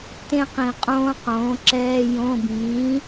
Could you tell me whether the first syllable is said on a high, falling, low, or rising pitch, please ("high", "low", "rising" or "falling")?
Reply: falling